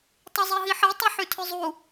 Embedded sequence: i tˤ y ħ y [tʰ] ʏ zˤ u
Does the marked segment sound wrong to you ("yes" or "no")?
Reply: no